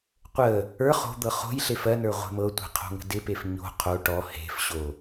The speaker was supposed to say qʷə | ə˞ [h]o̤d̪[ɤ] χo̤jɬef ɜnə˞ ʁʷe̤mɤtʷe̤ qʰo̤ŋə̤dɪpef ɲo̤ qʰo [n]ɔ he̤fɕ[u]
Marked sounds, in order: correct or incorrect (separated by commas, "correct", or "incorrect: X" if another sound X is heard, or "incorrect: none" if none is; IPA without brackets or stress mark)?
incorrect: χ, correct, incorrect: ʈ, incorrect: o